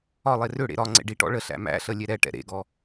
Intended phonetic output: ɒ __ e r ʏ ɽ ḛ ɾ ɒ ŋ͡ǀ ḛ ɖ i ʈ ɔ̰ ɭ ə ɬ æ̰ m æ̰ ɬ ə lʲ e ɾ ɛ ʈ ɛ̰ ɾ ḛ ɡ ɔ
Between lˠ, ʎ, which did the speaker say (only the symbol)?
lˠ